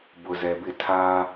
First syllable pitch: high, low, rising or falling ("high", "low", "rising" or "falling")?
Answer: low